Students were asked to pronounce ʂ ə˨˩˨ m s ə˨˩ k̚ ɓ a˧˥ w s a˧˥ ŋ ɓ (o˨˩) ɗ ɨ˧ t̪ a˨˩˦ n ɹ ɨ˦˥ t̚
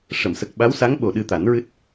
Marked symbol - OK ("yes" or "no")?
yes